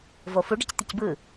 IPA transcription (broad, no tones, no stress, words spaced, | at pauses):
vofuɖʌc t̪icbɯ